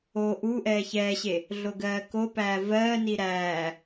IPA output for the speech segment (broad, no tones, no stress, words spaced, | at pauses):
o ʔu ʔɛːçɛːɕe | ɮoɡɜːkopæː vɜːni ɾæː